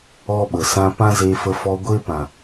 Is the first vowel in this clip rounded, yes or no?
yes